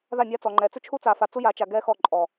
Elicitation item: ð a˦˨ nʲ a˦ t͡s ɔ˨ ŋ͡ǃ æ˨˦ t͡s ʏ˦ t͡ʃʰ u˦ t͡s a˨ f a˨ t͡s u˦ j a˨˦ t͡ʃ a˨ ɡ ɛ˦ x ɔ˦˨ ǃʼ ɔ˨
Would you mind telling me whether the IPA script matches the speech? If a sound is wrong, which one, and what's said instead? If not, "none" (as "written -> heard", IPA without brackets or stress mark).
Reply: æ˨˦ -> ɛ˨˦